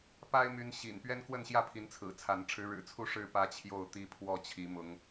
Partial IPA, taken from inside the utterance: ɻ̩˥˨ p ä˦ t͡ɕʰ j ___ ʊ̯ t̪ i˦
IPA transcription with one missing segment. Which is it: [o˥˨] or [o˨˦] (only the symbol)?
o˥˨